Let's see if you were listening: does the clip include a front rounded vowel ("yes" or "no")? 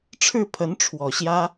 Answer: no